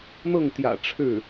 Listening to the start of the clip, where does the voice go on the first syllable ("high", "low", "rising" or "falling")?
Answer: falling